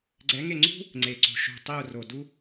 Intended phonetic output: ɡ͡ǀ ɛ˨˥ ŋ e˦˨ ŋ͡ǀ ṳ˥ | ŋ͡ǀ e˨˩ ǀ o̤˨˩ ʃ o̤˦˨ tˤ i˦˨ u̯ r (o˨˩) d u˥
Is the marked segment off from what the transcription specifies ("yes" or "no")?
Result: no